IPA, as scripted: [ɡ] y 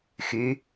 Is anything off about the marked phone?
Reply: yes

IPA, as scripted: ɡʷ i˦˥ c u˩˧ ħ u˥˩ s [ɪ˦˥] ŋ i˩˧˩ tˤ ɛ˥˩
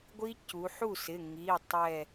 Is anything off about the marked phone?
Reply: yes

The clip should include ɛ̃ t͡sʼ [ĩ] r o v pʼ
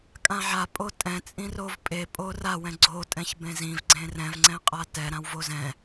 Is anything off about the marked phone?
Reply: no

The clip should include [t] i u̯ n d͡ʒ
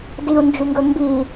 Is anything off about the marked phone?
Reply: yes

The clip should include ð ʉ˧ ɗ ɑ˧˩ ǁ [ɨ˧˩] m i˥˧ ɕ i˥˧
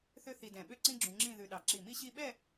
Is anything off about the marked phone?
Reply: yes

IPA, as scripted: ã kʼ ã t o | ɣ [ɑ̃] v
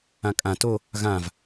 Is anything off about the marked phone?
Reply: yes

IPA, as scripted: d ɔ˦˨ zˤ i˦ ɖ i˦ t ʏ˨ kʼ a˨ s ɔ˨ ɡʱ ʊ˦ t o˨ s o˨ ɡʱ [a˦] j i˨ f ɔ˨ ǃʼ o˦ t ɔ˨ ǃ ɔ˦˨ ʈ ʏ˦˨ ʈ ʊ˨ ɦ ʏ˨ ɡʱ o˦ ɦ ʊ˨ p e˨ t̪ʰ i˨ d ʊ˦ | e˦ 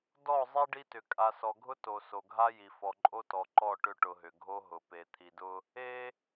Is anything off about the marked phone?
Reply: no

